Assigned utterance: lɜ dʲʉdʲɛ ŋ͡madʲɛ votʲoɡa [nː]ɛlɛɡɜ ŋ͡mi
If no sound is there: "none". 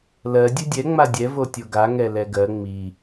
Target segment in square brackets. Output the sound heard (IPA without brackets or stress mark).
ŋ